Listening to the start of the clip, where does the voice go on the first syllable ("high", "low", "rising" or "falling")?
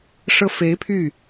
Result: high